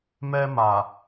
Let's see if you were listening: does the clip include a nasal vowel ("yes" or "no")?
no